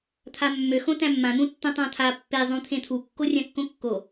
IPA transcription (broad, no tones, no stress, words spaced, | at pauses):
t̪ʰamːø xõtæ̃mːãn̪ũ tːõtˤãt̪ʰa pːezˤũ t̪ʰẽt̪ʰukːo rʲãkːõkːo